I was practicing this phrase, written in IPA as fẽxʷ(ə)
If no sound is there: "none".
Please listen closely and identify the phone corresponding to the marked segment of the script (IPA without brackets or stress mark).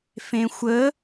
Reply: ə